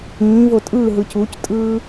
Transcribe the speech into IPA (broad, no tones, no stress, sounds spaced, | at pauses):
ĩː v o tʼ ɯː ɦ ɯ c u c tʼ ɯː